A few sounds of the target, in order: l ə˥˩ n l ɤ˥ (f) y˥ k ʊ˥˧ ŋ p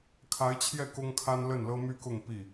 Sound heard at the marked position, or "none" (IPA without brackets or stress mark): m